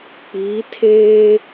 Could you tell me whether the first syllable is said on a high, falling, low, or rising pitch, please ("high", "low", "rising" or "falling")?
rising